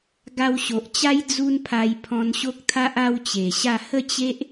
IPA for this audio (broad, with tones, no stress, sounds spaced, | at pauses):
ɡ a˧ w ɕ o˨ ʔ t͡ɕ a˦ j d͡z u˦ n pʰ a˧ j pʰ ɔ̃˧ n ɕ o˦ k̚ t̪ʰ a˦ ʔ a˦ w t͡ɕ e˨˩ ɕ a˥˧ h ə˥˧ t͡ɕ e˦ ʔ